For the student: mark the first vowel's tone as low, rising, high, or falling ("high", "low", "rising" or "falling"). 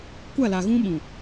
falling